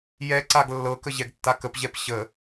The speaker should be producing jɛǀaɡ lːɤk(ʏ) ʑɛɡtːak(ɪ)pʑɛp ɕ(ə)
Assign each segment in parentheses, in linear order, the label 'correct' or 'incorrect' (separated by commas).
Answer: incorrect, incorrect, correct